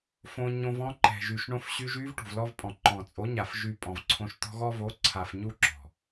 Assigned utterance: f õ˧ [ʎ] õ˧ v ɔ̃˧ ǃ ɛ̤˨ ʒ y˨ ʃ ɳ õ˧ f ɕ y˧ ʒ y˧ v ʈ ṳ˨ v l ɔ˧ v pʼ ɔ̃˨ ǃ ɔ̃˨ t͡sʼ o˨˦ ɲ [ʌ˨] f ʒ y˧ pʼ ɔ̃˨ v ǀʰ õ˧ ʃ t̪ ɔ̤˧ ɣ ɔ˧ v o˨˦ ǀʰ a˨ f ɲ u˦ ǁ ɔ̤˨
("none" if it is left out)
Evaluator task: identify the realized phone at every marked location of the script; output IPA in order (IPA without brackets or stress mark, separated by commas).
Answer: ɲ, a˨